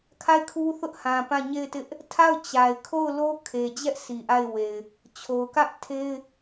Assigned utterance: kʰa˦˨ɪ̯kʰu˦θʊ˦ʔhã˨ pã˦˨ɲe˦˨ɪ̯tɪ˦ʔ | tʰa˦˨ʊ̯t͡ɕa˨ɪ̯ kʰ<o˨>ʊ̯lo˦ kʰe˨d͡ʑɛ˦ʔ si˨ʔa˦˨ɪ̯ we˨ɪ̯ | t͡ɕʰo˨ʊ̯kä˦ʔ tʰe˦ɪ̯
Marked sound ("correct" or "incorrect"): incorrect